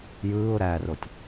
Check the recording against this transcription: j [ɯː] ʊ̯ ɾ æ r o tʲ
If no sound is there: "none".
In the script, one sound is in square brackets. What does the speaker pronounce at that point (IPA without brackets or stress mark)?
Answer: ɯː